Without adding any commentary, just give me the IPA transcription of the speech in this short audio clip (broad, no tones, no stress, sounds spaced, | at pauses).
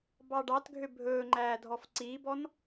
b ɑ ɖ ɑ t ɡʱ ø bʱ ɵː ŋ͡ǃ æː dʱ ɔ f ǀ iː b ɔ n